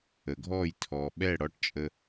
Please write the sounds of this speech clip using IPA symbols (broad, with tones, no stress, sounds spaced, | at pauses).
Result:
ə˨ ɡʱ ɔː˦˨ j tʰ ɔː˨ ɓ ɛ˦˨ ɽ ɔ˧ ʈ t͡ʃʼ ə˧